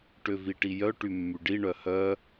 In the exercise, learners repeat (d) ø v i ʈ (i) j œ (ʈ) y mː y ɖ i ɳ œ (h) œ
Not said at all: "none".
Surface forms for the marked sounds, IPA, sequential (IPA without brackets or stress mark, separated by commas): ʈ, i, ʈ, h